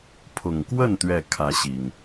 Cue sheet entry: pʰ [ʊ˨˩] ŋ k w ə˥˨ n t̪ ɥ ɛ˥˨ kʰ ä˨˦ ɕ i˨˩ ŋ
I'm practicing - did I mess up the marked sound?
no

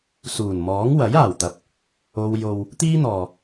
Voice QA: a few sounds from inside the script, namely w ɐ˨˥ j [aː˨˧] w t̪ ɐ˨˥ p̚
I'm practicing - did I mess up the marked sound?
yes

